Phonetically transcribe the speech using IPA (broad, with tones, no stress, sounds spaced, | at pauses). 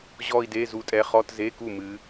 ʑ ɔ˥˧ i̯ d e˧˥˧ z u˧˥ tʼ ɛ˧˥ χ ɔ˧˥˧ t z e˧˥˧ k u˥˩ m ɨ˧˥